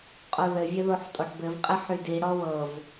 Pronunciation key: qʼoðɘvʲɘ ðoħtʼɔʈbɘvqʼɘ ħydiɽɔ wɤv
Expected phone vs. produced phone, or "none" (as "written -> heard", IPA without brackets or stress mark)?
none